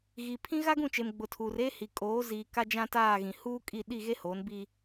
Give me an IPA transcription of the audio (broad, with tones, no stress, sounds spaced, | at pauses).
ɣ i˨ pʰ ĩ˦ ɣ a˦ ɡ ũ˦˨ t͡ʃ e˨ m ɡ͡b ʊ˨ tʰ uː˨ r e˦ h i˨ kʼ oː˨˦ z iː˨ k a˦ d͡ʒ ã˦ t aː˦˨ ɣ ĩ˨ h uː˦ kʼ i˦˨ ɗ i˦˨ ɣ e˦ h oː˨˦ n b iː˦